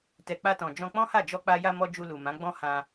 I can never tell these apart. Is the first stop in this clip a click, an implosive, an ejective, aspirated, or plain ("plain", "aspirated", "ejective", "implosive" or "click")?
plain